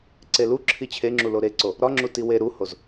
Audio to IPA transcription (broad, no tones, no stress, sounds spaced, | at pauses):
ǀ e l u ǁʰ i t͡ɕʰ e ŋ͡ǁ u l o ɾ e ǀ o | ɾ ɒ ŋ͡ǁ u t i w e ɾ u h o z